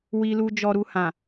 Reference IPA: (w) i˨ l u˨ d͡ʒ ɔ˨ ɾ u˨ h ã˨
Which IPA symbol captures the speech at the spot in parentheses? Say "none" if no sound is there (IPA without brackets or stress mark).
w